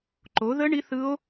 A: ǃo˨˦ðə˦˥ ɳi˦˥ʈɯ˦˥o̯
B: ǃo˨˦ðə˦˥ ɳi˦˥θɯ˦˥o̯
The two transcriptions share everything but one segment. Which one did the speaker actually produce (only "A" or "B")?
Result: B